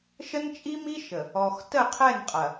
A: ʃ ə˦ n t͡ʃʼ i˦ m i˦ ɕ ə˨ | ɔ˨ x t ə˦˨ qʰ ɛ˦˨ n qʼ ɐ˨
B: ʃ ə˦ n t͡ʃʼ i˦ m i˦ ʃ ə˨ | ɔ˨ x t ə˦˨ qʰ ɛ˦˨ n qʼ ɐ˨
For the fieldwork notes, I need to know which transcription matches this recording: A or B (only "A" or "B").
B